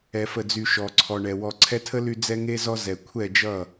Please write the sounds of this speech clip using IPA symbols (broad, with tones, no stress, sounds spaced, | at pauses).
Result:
ɛ˧ f ə˦˨ d͡z y˧ ʃ ɔ˨ ǀʰ ɔ˨ ɳ ɛ˨ w ɔ˨ ǀʰ ɛ˧ tʰ ə˦ l y˧ d͡z ɛ˦ ŋ e˦ z ɔ˦ z ɛ˨ kʷʰ ɛ˦˨ d͡ʒ ʌ˦˨